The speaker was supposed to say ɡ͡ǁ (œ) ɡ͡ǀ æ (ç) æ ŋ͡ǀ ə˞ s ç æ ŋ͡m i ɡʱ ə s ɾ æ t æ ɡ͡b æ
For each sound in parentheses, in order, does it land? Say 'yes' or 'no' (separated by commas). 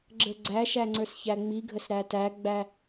no, no